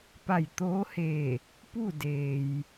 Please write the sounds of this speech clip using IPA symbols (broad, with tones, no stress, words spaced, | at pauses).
pa˧˩jt̪oː˧˥heː˧˩ | pu˥˨ deː˩j